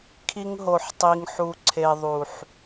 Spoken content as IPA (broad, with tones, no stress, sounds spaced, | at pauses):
kʰ i˧ ŋ ɦ o˨ ħ tˤ i˨ ŋ ħ u˨ ǀʰ e˨ ðˤ u˨ ħ